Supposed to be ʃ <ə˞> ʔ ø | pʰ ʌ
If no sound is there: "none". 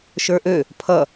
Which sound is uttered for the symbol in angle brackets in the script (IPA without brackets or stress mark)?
ə˞